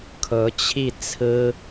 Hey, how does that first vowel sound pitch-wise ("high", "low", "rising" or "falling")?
rising